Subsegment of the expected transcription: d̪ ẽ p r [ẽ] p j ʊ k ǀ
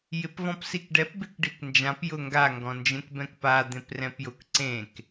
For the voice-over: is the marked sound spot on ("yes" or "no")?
no